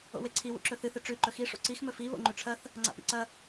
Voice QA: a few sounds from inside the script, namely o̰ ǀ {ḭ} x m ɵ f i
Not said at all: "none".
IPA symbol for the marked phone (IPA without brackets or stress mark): i